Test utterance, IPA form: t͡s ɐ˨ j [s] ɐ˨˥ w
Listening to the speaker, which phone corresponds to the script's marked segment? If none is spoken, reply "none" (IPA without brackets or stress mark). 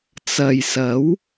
s